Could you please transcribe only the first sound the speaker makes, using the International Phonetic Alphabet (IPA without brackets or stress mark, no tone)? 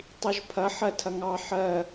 tˤ